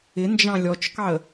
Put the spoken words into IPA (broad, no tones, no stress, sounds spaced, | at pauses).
ɪ n d͡ʒ ɑ̃ lʲ ɔ t͡ʃ k ɑ ə̯